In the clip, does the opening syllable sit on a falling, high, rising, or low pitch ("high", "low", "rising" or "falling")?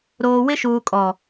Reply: low